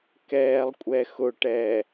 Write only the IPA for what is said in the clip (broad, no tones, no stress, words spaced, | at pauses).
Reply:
kɛːlˠkʷʼɛxʊʈɛː